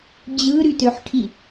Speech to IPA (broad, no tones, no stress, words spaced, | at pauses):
d͡ʑɯɾytøħʈʰi